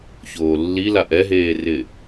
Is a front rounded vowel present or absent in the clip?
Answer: absent